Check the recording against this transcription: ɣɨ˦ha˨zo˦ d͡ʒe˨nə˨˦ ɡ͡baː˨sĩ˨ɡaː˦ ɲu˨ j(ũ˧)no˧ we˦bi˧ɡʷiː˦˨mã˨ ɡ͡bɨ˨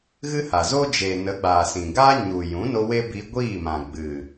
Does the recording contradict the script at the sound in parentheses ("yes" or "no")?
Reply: yes